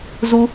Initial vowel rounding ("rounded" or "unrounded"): rounded